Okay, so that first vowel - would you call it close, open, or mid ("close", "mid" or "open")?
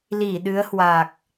close